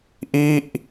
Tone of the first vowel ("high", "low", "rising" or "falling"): falling